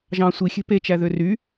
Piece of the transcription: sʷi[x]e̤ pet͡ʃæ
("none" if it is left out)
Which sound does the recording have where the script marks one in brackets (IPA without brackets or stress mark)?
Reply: xʲ